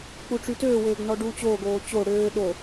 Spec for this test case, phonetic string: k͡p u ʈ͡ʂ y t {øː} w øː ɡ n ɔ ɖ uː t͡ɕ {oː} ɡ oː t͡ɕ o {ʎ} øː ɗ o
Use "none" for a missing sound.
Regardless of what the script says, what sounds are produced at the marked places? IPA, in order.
øː, oː, ɽ

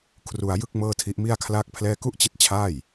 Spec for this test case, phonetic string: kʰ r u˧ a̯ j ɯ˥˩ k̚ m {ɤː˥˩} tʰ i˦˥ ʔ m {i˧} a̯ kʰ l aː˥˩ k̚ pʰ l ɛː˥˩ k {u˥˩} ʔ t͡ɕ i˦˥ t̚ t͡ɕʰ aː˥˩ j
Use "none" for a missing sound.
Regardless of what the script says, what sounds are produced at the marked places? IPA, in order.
ɤː˥˩, i˥˩, u˥˩

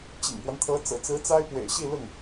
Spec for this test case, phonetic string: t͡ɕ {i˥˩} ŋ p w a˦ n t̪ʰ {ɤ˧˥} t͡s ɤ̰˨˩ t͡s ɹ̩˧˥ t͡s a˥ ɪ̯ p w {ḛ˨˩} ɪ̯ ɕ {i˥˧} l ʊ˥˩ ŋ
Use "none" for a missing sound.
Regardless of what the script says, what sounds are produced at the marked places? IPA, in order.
ḭ˨˩, ɤ˧˥, ḛ˨˩, i˥˧

